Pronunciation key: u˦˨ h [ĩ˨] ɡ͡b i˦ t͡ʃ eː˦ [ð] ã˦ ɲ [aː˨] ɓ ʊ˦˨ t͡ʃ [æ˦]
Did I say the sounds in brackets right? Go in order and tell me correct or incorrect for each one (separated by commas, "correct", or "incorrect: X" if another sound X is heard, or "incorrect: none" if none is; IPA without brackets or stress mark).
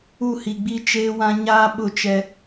incorrect: i˨, incorrect: w, incorrect: aː˦, incorrect: ɛ˦